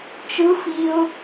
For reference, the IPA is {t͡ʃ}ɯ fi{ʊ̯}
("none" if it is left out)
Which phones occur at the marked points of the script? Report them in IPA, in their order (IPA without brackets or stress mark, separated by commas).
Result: t͡ʃ, ʊ̯